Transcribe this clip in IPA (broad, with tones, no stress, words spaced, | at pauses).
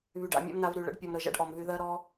βy˨ɖ a̰˧ mʲa̰˦mna˧vɾy˨ ɭə̰˨˦ɖpʲɔ˨m ɾə˨ʒa̰˦ɖʔɔ˨mvy˧ ðɜ˧ɾɔ˧